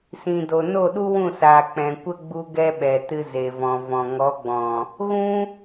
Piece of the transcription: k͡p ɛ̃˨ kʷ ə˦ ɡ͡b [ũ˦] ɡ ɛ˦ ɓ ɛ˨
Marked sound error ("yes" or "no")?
yes